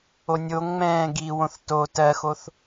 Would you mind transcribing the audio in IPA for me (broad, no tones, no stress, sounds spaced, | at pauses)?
o nʲ o ŋ ŋ͡m ɛ̃ː ɡ i w õ θ t o t ɜ x o θ